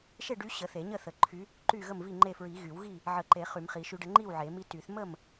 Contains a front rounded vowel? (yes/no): yes